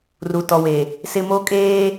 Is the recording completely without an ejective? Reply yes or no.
no